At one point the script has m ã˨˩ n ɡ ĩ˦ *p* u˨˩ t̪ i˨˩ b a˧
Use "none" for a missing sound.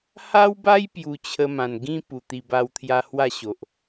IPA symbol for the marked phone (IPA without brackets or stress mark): p